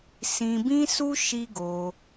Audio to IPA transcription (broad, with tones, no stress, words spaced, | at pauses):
sĩ˧bĩ˦su˦ ʃi˦ɡo˧